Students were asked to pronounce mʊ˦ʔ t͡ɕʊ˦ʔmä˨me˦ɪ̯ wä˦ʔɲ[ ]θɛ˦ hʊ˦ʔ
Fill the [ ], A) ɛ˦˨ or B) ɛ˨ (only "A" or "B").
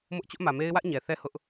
B